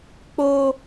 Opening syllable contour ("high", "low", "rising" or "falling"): high